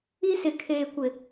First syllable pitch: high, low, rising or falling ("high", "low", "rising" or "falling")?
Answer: high